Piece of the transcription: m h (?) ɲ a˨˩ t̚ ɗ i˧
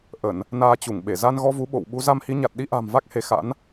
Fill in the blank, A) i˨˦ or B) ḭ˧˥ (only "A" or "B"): A